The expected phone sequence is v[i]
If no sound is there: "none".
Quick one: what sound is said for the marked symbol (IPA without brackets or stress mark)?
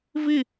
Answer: i